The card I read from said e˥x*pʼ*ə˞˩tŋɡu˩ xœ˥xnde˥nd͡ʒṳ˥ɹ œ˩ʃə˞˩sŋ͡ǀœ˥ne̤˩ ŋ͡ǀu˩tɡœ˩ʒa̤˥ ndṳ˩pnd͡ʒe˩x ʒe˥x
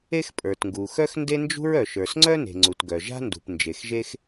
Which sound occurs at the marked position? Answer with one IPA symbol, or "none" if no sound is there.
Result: pʼ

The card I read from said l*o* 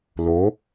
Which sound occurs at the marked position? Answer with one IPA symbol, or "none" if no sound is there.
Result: o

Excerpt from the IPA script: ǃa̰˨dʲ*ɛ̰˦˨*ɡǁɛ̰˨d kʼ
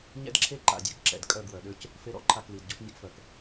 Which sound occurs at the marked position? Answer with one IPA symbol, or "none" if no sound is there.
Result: ɛ̰˦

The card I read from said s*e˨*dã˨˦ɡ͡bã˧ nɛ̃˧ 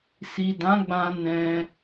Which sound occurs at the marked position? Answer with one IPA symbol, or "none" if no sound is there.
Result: i˨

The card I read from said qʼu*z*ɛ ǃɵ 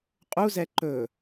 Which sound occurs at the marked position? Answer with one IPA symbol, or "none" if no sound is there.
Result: z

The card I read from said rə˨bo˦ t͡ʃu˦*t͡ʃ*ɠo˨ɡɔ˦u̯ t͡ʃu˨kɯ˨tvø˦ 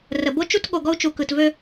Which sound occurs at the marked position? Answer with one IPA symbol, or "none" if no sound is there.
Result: t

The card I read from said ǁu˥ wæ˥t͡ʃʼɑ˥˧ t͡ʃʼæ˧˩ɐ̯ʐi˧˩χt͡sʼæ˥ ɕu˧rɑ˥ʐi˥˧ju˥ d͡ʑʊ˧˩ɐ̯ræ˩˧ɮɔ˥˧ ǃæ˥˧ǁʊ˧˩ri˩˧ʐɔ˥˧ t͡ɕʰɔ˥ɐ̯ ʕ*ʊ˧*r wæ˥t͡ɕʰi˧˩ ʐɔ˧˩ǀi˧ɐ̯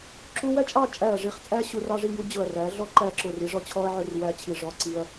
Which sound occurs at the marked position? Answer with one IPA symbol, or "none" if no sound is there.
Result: ʊ˥˧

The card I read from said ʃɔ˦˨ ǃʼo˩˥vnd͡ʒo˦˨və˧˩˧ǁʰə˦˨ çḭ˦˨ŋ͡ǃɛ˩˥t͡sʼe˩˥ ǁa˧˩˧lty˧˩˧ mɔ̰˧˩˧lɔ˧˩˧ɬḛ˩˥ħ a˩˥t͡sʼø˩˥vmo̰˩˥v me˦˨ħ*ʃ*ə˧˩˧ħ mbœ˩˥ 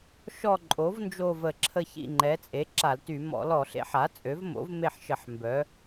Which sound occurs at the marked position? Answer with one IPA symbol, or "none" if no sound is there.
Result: ʃ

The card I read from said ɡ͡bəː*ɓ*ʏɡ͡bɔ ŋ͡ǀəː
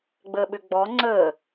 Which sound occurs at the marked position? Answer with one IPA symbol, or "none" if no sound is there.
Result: ɓ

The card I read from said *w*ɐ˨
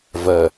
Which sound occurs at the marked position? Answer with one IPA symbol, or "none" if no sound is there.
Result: v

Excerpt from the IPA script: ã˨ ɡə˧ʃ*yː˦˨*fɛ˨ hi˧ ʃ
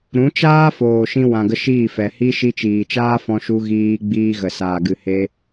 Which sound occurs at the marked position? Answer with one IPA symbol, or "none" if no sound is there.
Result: iː˦˨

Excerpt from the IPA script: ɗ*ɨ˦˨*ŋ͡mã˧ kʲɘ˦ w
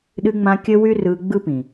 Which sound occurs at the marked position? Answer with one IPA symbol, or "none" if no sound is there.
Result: ɨ˧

